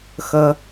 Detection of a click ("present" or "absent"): absent